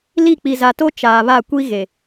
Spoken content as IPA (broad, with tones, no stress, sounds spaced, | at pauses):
l i˦˨ k͡p i˨ z a˨ t o˦ t͡ʃ aː˨ β a˦˨ kʷ i˦ ɣ e˨